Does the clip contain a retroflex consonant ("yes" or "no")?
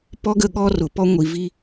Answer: no